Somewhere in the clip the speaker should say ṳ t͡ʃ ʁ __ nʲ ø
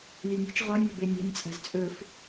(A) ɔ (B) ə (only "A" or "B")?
A